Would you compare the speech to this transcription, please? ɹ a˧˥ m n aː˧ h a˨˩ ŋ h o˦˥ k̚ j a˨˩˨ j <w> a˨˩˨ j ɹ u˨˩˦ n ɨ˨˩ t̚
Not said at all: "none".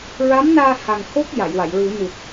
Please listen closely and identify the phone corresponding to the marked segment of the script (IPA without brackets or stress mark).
w